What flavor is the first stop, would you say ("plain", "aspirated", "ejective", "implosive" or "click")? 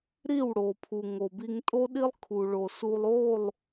aspirated